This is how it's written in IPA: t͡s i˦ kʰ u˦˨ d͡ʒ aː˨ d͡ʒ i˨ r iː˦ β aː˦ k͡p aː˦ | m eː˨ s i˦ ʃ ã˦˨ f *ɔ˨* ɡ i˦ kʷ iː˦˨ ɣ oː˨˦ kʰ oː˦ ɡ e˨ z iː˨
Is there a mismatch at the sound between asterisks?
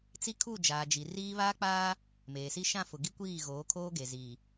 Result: yes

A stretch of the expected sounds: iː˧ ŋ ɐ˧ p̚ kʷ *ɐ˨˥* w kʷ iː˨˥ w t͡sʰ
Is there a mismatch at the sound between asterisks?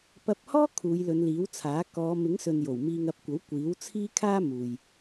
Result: no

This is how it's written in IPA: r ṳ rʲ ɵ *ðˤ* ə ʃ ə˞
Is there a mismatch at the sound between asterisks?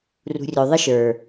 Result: no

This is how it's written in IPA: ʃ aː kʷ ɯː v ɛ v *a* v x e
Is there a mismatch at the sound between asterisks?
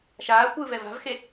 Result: yes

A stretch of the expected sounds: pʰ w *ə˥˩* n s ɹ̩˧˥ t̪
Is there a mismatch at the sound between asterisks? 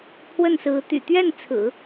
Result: no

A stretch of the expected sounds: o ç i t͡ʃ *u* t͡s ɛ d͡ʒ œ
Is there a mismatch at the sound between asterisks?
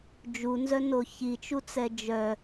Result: no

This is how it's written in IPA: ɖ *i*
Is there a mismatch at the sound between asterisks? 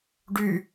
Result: yes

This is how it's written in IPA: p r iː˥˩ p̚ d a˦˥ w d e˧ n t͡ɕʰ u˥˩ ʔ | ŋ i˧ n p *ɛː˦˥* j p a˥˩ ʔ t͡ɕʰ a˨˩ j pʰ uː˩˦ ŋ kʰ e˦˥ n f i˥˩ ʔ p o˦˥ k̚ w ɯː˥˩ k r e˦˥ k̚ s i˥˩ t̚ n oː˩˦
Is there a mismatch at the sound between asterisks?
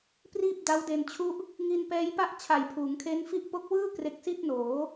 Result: no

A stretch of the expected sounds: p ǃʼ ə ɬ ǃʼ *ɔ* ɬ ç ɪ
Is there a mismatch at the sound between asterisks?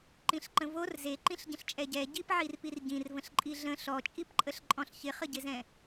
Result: yes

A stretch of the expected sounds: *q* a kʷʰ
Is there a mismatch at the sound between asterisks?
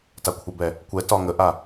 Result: yes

